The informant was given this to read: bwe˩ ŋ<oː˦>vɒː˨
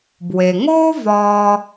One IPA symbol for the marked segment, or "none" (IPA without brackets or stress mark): oː˦